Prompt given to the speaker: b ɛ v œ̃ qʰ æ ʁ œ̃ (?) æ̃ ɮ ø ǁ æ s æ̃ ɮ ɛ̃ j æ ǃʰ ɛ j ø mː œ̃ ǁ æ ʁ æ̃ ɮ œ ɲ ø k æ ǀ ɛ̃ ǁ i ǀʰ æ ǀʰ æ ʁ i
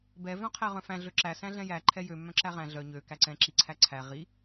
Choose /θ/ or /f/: f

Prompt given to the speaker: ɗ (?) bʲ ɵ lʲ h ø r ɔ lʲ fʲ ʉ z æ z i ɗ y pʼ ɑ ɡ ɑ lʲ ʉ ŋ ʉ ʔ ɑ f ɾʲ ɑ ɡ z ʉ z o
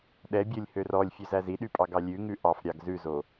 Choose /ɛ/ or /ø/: ɛ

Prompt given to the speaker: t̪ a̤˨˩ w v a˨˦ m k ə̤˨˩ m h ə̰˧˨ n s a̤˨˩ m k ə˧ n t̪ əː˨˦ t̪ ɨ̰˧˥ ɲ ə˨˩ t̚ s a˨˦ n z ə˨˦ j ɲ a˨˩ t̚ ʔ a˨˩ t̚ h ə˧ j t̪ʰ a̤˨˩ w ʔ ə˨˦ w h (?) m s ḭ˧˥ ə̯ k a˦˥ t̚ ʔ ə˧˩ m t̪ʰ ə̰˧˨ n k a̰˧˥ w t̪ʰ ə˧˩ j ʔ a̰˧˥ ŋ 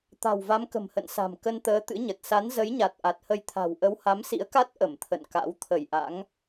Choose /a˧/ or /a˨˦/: a˨˦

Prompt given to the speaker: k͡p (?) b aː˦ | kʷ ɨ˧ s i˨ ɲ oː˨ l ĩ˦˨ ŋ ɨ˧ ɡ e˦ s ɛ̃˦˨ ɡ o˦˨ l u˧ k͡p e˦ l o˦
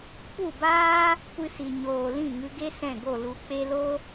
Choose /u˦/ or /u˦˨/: u˦˨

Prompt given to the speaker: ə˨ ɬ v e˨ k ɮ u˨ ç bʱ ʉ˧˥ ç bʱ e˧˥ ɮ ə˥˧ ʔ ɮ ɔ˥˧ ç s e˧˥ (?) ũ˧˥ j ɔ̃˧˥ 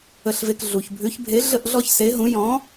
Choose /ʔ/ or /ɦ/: ɦ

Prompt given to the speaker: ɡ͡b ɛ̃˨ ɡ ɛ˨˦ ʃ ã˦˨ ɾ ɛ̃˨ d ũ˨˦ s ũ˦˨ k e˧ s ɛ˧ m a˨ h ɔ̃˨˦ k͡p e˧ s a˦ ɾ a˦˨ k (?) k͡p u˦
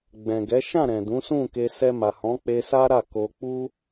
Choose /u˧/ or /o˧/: o˧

